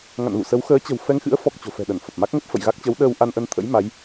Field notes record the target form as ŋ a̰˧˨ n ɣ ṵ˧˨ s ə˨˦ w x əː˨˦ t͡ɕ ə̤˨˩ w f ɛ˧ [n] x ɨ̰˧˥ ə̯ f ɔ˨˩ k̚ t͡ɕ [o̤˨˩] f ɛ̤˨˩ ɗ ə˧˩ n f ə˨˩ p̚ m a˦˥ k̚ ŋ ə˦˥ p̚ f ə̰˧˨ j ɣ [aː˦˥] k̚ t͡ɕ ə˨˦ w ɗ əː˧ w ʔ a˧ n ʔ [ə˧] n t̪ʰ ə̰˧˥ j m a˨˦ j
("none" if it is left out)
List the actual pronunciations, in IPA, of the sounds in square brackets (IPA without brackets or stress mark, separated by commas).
ŋ, o̤˨˩, a˦˥, ə˧